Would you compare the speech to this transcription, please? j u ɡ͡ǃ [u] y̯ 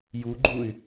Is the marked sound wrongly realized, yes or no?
no